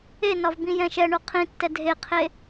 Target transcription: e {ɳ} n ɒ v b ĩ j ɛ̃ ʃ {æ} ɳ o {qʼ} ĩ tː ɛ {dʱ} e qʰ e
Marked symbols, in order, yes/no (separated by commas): no, no, no, yes